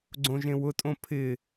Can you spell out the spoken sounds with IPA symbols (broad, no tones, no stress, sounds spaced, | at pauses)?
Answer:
ɡ͡ǀ õ ʒ ẽ w ʊ tʼ õ pʰ ɪ